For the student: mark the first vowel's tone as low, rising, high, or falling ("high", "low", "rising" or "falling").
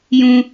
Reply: high